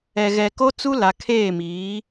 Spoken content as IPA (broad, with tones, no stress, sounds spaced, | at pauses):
ɛ˨ ɣ ɛ˨ k o˦ t͡s u˦ l a˨ kʰ eː˦˨ m iː˨˦